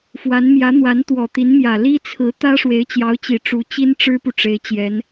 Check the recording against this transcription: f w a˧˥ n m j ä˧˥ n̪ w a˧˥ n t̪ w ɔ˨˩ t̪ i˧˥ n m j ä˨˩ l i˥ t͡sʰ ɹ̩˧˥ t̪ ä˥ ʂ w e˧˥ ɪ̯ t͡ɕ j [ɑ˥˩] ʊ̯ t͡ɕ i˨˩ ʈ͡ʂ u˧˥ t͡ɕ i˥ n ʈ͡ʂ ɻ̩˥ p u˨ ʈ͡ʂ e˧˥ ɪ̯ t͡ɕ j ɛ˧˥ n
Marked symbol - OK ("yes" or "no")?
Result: no